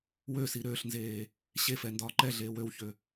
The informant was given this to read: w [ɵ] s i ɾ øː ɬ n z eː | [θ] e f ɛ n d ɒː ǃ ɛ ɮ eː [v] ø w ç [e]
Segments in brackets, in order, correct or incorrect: incorrect: ø, incorrect: ɕ, incorrect: w, incorrect: ø

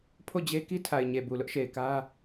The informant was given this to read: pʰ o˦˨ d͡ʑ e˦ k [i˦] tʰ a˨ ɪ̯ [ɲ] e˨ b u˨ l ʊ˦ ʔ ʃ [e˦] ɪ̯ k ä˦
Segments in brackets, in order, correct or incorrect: correct, correct, incorrect: e˨

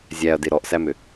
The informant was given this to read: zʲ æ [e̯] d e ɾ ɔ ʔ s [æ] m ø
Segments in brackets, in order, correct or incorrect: incorrect: ɐ̯, correct

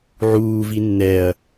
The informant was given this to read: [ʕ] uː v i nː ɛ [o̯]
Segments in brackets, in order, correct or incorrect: correct, incorrect: ɐ̯

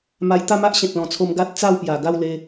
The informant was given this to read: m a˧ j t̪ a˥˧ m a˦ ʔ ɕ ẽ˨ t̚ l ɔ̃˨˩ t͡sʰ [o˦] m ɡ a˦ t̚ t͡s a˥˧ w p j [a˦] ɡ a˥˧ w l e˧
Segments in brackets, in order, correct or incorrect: incorrect: o˧, incorrect: a˨˩

